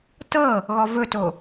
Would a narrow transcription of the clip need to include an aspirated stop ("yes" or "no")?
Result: no